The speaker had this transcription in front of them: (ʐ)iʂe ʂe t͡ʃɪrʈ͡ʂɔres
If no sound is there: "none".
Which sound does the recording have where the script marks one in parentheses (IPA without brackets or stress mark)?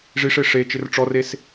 ʐ